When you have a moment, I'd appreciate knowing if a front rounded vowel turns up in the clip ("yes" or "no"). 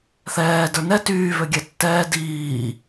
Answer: yes